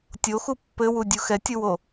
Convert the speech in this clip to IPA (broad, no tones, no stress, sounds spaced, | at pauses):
tʲ o x u pː ɘ w u dʲ u x ɛ tʲ u w o